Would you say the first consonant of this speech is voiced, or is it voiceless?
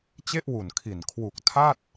voiceless